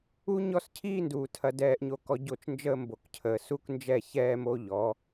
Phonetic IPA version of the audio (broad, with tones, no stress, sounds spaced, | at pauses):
u˦ ɲ ɔ˦ s cʰ iː˦ n d uː˨ tʰ ɐ˨ d ɛː˨ ʔ ɲ o˨ k ɔ˨ ɟ o˦˨ t͡ʃ n d͡ʒ əː˦ m b o˨ k cʰ əː˨ s u˦ k n d͡ʒ ɛ˦˨ ç ɛː˦ m o˦ ʎ ɔ˨˦